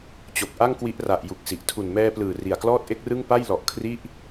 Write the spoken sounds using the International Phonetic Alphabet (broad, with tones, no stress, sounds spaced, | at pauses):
t͡ɕ o˨˩ k̚ ʔ a˥˩ ŋ k w i˦˥ ʔ r a˨˩ ʔ j u˨˩ k̚ s i˨˩ ʔ tʰ u˨˩ n m ɛː˧ p l ɯː˨˩ r i˨˩ a̯ k l ɔː˥˩ t̚ ʔ e˥˩ k̚ r ɯ˥˩ ŋ p a˥˩ j l ɔ˨˩ ʔ kʰ r i˥˩ ʔ